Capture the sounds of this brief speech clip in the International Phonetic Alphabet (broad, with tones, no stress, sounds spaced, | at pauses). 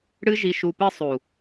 ɽ ɨ˦ ʒ i˧ ʃ u˧ p ɨ˦ sˤ uː˨